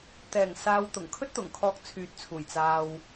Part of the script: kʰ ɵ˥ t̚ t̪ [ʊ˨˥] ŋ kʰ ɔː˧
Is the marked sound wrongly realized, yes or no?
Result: yes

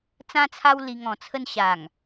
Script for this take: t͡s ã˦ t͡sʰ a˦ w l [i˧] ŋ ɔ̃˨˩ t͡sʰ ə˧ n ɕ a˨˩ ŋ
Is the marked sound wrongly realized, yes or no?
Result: no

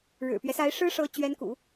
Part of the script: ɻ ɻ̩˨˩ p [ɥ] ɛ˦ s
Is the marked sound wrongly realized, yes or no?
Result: no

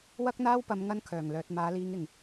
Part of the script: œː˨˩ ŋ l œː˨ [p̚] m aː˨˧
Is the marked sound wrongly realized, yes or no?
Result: yes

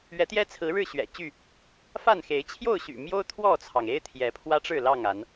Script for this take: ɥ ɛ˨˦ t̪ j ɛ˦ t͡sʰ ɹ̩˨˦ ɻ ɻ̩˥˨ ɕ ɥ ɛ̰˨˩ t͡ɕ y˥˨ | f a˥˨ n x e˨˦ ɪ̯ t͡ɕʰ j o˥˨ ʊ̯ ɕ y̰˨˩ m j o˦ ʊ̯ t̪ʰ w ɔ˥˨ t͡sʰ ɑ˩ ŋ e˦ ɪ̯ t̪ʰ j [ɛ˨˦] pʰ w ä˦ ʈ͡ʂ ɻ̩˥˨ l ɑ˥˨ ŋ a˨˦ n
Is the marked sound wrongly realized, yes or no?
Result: no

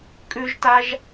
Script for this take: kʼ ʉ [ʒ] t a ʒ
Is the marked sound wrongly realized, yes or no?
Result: no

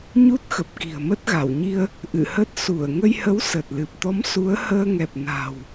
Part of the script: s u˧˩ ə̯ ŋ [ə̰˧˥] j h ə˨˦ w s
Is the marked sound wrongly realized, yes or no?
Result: yes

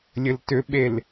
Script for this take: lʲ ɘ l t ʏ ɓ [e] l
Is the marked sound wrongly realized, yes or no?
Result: no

